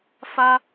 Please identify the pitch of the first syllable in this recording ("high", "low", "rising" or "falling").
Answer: high